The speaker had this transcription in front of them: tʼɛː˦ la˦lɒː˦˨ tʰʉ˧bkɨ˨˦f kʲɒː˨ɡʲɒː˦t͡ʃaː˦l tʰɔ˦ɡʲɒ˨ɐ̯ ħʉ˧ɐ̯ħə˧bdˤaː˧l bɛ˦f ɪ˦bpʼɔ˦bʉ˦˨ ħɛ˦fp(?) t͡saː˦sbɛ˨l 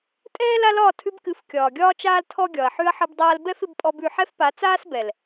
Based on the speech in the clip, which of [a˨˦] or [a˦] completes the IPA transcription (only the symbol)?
a˨˦